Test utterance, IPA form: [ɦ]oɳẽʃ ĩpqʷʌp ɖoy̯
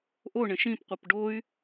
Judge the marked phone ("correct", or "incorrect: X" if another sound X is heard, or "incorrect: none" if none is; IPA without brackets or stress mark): incorrect: ʔ